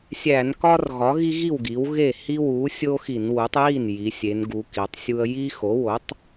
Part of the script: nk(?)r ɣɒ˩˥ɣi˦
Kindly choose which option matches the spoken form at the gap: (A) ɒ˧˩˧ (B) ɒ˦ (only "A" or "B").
B